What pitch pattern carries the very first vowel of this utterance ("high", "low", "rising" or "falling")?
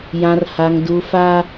high